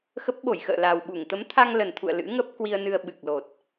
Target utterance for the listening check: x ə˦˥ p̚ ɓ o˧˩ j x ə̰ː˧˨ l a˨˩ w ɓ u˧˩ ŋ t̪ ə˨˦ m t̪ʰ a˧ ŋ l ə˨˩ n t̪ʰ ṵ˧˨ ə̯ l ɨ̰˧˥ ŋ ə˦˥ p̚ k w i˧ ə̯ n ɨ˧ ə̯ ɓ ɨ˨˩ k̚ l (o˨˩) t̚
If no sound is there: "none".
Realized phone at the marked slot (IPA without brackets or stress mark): o˨˩